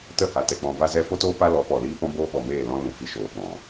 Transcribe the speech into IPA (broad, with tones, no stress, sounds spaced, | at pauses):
t ə˦˨ h a˨ t ɛ˨ k͡p ɔ̃˨ v a˧ z ɛ˧ f o˦ t oː˦ p a˦ l ɔ˨˦ p ɔ˨ l iː˦ p ɔ̃˦ b oː˦ ɓ ɔ˨ m eː˦˨ l ɔ̃˦ l ũ˨ f i˧ ʃ oː˨ ɓ ɔ̃˨